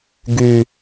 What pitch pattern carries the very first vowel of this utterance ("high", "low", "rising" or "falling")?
low